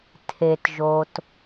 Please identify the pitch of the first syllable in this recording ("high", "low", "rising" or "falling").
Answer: low